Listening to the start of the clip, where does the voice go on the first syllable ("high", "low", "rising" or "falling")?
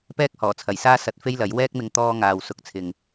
high